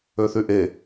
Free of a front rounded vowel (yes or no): no